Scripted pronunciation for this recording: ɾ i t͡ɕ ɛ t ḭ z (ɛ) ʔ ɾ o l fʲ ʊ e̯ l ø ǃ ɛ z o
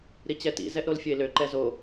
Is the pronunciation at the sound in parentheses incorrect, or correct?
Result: correct